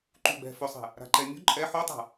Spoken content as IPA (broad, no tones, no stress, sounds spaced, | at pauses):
ǃ u ɡ͡b ɛ̤ f ɵ sˤ ɛ̤ | ɾ a̤ ǃ ɛ mʲ ṳ ǃʼ ɛ ħ o tˤ a̤